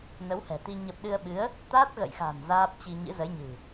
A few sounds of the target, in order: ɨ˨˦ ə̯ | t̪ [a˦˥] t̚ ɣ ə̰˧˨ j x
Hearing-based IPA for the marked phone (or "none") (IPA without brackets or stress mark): a˦˥